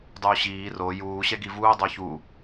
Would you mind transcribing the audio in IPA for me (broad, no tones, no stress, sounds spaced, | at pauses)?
dˤ uː ɕ iː r o j uː ɕ ɛ ɡ i v uː dˤ o ç u